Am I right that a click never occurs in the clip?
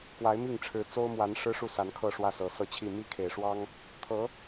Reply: yes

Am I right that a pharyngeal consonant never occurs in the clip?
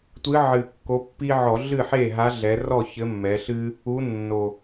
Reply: no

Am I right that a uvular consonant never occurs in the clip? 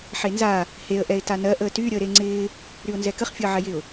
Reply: no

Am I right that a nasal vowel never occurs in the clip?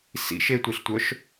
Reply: yes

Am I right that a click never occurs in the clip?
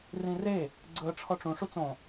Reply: no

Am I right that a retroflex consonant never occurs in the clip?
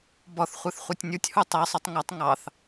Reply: yes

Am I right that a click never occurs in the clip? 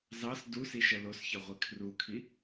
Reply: yes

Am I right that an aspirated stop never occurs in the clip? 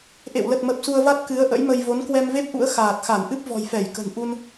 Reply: yes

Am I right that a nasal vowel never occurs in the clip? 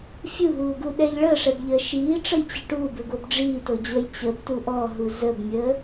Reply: yes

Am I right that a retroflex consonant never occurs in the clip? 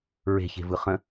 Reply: yes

